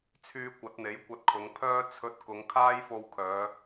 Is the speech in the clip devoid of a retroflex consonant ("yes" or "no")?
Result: yes